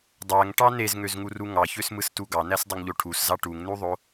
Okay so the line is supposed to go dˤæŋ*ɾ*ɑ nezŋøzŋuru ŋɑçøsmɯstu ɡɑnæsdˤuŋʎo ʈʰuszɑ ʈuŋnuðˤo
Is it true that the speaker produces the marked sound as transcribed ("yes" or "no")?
no